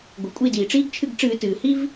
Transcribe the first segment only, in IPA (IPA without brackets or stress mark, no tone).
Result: ɡʷ